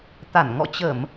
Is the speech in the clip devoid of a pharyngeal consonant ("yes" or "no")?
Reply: yes